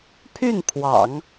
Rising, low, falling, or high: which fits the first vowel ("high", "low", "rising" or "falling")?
falling